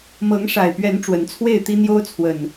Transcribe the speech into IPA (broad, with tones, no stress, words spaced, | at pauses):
mɤ˨˦ŋʂa˨˩ɪ̯pɥɛ˨˦n ʈ͡ʂwə˨˦nt͡sʰwe˥˨ɪ̯t̪i˦ n̪jo˦ʊ̯t͡sʰwə˨˩n